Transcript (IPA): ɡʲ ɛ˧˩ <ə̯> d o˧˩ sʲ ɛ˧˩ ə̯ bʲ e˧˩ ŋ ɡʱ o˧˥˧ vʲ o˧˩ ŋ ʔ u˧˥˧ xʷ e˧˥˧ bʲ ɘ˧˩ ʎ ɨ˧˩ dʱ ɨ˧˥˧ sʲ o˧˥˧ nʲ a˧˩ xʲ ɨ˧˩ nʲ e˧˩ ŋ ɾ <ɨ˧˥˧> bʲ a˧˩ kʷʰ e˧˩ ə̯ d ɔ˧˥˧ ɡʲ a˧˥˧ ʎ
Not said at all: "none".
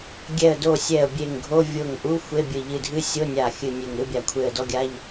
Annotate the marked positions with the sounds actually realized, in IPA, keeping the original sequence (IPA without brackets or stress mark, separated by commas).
ə̯, ɨ˧˥˧